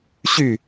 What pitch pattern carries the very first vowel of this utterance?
falling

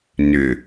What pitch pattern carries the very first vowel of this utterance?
low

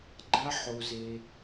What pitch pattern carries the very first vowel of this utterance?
high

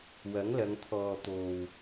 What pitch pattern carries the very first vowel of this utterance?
rising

